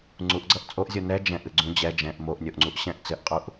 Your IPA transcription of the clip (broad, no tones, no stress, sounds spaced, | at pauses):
ŋ͡ǀ u ʔ ɡ͡ǀ ʌ ʔ t͡sʼ o ʔ zʲ o n ɛ d͡ʒ ɛ̃ ʔ ɨ ɡ͡ǀ ũ d͡ʑ ɛ d͡ʒ ɛ̃ ʔ m o ʔ nʲ o ʔ ŋ͡ǀ u ʔ ɕ ɛ̃ ʔ t͡s ɘ ʔ qʼ u ʔ